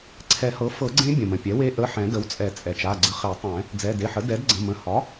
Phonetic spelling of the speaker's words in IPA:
ǀʰɛ˨˩˦hɤ˩˥ fɤ˨˩˦ɡ͡ǀẽ˧˥ bʲə̃˩mə̃˩ pʲɛ˩˥we˧˥ ʔə˩˧˩ ħɛ̃˨˩˦də˩˥wt͡sʼɛ˨˩˦ t͡sʼɛ˩t͡ʃa˩˧˩ɡ͡ǀə˧χe˨˩˦ tˤɛ̃˨˩˦ | d͡zɛ˩˧˩de˩˧˩ħə˩˥ dɛ˩˥dɡ͡ǀə̃˩˧˩ mə̃˩˧˩hɒ˩˥

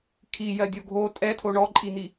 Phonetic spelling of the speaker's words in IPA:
kʰijɜdʲo ɡʱo tʼɛtʰo ɳɔǃʼin̪i

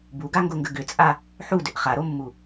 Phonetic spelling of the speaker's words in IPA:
buɡaŋɡoŋɡə ɡʏt͡sʼa | ħudʏʔ χaɾomːu

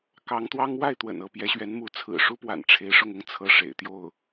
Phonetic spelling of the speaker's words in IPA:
kɑ˧˥ŋt̪wɑ˥ŋ wa˥˩ɪ̯t̪wə̰˨˩n ɤ˥˩ pjɛ˧˥ɕɥɛ˧˥nmu˧˥ t͡sʰɹ̩˨˩ʂu˥pwa̰˨˩n ʈ͡ʂʰe˧˥ɪ̯ʂʊ˥˩ŋʊ˥ŋ t͡sʰɤ˥ʂḛ˨˩ɪ̯t̪jo˥˩ʊ̯

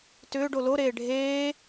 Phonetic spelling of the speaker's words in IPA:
tʏːɖo loɾeː ɖʱeː

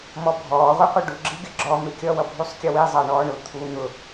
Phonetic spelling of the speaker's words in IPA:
mɔbʱɔː ʁʷiqʷʌɖu ɡ͡ǁiɡʲʌɡ͡ǁɔ mɪkʲʌ wʌbʱusˤkʲʌwi zˤɑɳɔːɳʊ t̪ʰu n̪ʊ

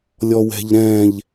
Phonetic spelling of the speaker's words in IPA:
lʲɔwɛ̤ʎɾɛ̃ʎ

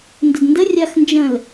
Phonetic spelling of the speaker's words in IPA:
ndədndə rʲaxnd͡ʒə̃l

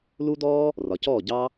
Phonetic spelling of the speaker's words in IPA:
lu˦dɔː˦ | rɒ˨cɔː˦˨ɟɑ˦

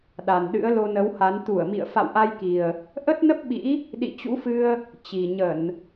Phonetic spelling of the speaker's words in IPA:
ɗa˨˩nɗɨ̰˧˥ə̯ lo˧nə˨˦wha˨˦n t̪u˧˩ə̯mḭ˧˨ə̯ fa̰˧˨wʔa˧jki˨˩ə̯ | ʔə˦˥t̚nə˦˥p̚ɓḭ˧˥ | ɗḭ˧˨t͡ɕṵ˧˥fɨ˧ə̯ | t͡ɕi˨˩ɲə˧˩˨n

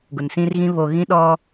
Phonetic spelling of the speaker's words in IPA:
ɡʊ˨nsĩ˦rɣĩ˦ βo˨ɣĩ˦ ɗɔ˦

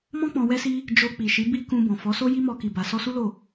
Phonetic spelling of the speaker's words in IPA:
mɔ̃˦ k͡pɔ̃˧wɛ˦si˦ | d͡ʒo˧ k͡pi˨ʃi˨˦ bi˦kũ˧ bɔ̃˨fɔ˨˦so˦ ji˦mɔ˧ki˨ba˨ sɔ˧su˦lo˦˨

